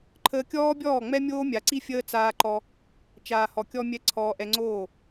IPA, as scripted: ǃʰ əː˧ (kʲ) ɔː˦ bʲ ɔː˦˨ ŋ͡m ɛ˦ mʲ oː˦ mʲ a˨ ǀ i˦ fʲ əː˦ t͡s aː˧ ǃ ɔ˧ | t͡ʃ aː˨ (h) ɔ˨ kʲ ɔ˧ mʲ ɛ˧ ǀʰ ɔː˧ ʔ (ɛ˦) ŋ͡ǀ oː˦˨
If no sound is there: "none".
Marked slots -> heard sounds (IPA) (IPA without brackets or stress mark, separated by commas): kʲ, h, ɛ˧